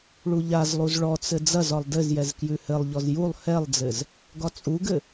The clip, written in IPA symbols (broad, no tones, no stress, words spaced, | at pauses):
ɭuʎazlˠuz ɭɔt͡sɘ d͡zɐzɒlˠ dɘzjɛz kjʉhɘlˠʎɔz julˠ hɛlˠd͡zɘz | ɡɒt͡sʼuɡɘ